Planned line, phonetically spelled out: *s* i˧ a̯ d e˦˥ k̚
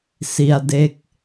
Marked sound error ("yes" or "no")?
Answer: no